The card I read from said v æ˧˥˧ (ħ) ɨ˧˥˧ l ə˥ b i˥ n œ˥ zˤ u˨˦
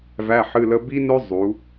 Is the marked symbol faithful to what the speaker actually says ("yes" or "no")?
yes